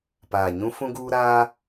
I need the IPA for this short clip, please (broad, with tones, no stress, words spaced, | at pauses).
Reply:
paː˨ɲũ˦ fũ˦ɡuː˦ ɾaː˦